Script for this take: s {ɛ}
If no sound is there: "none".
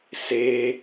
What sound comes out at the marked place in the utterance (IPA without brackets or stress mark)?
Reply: e